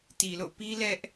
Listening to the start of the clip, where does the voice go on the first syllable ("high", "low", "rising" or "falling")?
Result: low